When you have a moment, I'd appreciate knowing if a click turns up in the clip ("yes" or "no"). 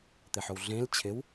no